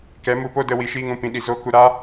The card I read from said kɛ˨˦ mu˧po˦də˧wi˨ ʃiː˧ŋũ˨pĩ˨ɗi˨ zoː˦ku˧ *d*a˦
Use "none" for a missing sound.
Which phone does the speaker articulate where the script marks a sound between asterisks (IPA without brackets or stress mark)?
ɾ